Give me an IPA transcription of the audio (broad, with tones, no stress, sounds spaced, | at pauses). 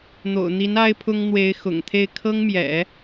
n̪ o̰˨˩ ʊ̯ n̪ i˧˥ n a˥ ɪ̯ pʰ ʊ˥ ŋ n̪ w e˧˥ ɪ̯ x ʊ̰˨˩ ŋ t̪ʰ e˥˩ ɪ̯ kʰ ɤ˥ ŋ m j ɛ̰˨˩˦